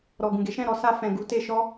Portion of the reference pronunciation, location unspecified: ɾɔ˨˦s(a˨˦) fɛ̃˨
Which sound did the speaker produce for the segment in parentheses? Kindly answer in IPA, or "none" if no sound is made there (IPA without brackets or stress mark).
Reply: a˧